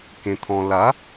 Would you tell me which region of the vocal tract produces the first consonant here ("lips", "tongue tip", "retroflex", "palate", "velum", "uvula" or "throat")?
velum